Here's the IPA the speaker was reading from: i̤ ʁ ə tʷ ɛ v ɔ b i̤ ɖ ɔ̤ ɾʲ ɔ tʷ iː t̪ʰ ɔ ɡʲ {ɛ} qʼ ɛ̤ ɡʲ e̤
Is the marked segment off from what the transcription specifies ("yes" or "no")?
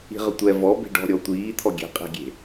yes